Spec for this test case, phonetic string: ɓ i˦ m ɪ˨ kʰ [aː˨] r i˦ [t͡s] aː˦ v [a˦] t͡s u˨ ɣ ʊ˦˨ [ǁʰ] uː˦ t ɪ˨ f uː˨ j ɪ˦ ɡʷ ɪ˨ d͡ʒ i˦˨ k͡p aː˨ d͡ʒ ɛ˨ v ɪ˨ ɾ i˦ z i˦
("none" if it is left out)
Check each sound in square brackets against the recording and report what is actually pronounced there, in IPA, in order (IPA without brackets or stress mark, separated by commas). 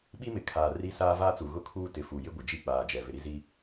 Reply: aː˨, s, aː˦, kʰ